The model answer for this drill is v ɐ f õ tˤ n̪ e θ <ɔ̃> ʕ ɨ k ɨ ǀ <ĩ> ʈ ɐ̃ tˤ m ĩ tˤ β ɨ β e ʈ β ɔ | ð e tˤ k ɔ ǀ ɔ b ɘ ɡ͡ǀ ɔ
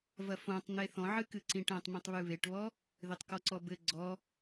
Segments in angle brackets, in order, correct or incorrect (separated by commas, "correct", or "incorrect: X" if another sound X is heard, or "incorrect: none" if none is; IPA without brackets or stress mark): correct, correct